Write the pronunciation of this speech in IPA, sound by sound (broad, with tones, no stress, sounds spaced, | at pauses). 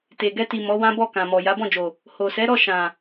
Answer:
t e˨ ɡ ɛ˧ t i˨ m ɔ˨˦ w ã˦ b ɔ˦˨ k ã˨ m ɔ˨ j a˨˦ b ɔ̃˦˨ d͡ʒ o˨ | h o˨ s ɛ˨˦ ɾ ɔ˦˨ ʃ ã˨